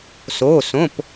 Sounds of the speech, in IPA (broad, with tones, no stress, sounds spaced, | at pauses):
s oː˩˧˩ s õ˩˧˩ p